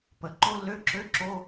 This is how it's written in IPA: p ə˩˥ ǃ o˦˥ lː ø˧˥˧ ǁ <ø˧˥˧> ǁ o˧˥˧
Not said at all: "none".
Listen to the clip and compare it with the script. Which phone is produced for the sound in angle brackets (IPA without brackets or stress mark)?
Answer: ø˧˥˧